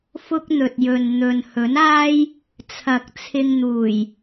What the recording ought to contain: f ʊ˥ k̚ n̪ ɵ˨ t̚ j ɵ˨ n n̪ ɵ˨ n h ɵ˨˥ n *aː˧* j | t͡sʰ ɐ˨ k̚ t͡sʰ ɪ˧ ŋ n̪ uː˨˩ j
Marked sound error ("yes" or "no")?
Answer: yes